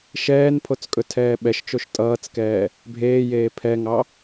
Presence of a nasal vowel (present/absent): absent